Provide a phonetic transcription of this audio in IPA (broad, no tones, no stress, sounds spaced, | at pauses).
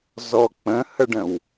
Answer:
z ɔ k͡p ə̃ h ə ɖ ə̃ w